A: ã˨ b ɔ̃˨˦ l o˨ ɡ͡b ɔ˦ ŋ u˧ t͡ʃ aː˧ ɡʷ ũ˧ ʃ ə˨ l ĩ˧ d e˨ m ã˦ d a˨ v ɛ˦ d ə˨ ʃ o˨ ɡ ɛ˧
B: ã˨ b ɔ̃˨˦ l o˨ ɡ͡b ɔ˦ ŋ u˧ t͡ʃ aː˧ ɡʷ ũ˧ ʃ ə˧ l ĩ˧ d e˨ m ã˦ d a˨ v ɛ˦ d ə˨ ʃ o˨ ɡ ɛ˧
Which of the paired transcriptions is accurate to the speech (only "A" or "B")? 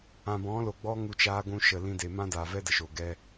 A